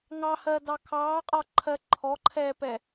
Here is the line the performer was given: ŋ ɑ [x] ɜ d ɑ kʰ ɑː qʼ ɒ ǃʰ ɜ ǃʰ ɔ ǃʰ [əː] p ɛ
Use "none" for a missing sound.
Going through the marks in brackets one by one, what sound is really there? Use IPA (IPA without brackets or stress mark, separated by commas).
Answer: h, ɛː